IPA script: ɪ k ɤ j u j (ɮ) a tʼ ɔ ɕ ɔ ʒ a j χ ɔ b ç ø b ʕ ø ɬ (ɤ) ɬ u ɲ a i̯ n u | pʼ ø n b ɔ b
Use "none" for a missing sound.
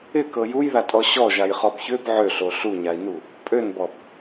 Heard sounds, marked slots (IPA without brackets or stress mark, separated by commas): ð, o